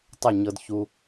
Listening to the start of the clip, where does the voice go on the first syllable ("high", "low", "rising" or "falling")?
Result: falling